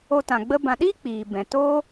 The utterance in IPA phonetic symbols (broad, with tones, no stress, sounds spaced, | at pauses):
o˧ t ã˨ ɡ͡b ə˧ b ã˨ ɗ iː˦ k͡p iː˨ b ɛ̃˨ t oː˦